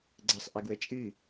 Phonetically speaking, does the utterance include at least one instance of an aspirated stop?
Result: no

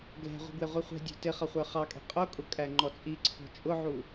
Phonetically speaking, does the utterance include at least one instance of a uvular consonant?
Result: yes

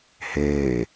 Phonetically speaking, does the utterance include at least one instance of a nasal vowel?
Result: no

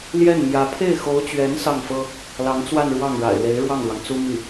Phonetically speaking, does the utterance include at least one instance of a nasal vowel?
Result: no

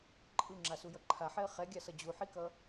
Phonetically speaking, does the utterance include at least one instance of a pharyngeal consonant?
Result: yes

